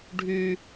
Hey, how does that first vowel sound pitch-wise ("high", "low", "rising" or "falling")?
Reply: high